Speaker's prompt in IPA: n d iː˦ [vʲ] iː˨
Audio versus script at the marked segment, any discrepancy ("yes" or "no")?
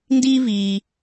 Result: yes